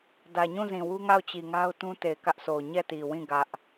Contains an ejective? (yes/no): no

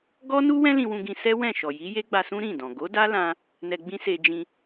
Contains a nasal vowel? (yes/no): yes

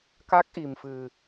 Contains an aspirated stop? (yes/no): no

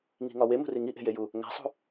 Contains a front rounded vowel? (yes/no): no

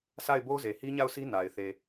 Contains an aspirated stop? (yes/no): no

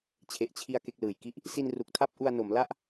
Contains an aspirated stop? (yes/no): yes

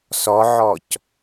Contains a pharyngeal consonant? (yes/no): yes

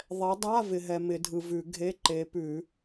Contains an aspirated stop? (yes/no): no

